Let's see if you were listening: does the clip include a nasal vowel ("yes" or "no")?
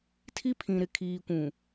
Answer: yes